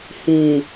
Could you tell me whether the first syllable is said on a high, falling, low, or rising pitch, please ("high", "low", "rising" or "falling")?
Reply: low